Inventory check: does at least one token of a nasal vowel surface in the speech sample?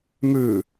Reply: no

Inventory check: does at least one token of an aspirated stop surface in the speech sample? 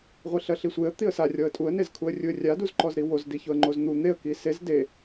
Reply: yes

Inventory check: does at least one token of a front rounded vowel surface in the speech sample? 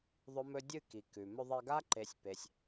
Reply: no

